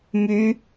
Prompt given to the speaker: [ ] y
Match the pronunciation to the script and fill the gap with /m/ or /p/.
m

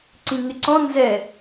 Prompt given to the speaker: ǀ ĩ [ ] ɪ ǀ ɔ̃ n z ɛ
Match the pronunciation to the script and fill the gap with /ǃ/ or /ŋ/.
ŋ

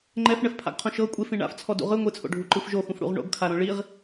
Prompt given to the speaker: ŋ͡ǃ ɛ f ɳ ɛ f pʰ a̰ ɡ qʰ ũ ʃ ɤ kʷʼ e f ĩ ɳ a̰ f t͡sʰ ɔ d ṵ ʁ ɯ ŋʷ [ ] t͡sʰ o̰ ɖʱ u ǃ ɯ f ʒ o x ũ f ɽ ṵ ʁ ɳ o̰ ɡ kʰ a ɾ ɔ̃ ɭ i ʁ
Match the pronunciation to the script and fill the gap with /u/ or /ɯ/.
ɯ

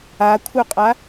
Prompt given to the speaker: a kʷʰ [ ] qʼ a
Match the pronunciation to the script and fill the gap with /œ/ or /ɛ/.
œ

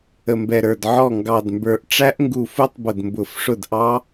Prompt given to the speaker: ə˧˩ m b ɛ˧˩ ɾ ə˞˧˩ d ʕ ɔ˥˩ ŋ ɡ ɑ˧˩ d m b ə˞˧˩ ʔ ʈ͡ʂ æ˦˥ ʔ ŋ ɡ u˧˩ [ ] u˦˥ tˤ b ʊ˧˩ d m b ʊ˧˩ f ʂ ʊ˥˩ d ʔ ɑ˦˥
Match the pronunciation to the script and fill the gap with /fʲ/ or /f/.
f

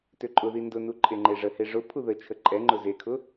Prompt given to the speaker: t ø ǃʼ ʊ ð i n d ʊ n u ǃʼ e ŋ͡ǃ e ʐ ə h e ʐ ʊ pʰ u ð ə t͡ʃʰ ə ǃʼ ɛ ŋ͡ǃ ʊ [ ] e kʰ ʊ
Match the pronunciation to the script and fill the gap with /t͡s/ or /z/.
z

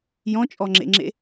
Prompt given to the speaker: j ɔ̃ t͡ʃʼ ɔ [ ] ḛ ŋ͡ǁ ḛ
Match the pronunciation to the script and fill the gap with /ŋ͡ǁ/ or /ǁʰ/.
ŋ͡ǁ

